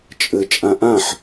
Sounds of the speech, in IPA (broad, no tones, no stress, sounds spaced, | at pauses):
t͡ʃʼ ɘ t͡ʃʼ ã ʔ ã ħ